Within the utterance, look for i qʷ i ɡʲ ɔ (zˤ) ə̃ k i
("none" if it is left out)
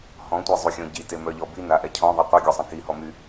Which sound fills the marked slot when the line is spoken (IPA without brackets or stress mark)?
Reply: sˤ